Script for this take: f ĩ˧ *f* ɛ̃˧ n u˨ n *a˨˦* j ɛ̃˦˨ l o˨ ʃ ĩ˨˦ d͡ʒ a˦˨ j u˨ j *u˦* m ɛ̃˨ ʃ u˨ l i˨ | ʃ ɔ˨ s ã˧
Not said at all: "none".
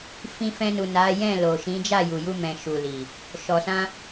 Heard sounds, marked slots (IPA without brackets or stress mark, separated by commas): f, a˨˦, u˧